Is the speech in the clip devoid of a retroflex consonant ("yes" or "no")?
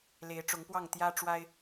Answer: no